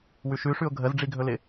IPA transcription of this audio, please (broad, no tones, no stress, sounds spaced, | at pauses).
w ʉ ʃ ʉ ʂ ʉ ʊ̯ ɡʱ ə z ɖ͡ʐ i ɡʱ ɵ l ɪ